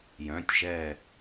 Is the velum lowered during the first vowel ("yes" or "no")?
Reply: yes